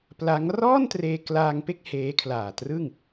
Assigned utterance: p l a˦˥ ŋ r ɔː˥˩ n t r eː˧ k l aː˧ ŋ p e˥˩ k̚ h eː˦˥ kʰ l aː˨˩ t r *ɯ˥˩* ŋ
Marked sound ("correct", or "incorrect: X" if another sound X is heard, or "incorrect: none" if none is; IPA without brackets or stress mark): correct